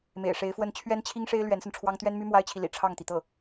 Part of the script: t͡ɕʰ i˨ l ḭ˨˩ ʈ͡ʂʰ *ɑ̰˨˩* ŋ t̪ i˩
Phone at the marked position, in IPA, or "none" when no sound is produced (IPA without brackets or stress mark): ɑ˥˩